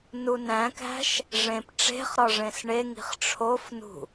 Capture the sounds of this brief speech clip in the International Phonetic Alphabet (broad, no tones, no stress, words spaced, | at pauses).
nunæ̃kæ̤ʃ | ʐẽp ʈ͡ʂe̤χɾɒ ʐẽsɳeŋi̤χ ʈ͡ʂʰofnṳ